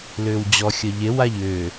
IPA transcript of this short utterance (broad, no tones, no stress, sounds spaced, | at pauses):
l ʏː w d͡ʑ ɔ xʲ ʌ ʎ e w a ʎ ʏː